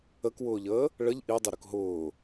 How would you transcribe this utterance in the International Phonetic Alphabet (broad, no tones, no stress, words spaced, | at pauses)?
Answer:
əkwʊːʎəː | ɭəʎ ʔidˤəɾʊk ɦʊː